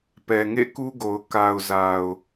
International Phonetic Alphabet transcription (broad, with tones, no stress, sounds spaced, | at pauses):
p ɛ˨ ŋ ḛ˦˨ k u˦ ɡ o˨ ʊ̯ k a˨ ʊ̯ z a˨ ʊ̯